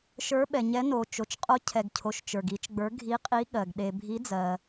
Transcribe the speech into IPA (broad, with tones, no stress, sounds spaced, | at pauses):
ʃ ə˞˧˥ ɓ ɛ˨ ɲ ɛ˧˥ n o˨ t͡ʃ o˨ t͡ʃ qʼ o˧˥ cʰ ɛ˨ ɡ cʰ o˨ ʃ t͡ʃ ə˞˨ ɡ i˧˥ t͡ʃ ɡ͡b ə˞˧˥ ɡʱ i˧˥ qʼ i˧˥ ɠ ɜ˨ ɡ ɗ e˨ bʱ i˧˥ d͡z ɜ˨